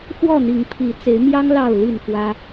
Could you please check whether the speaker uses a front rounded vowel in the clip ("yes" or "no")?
no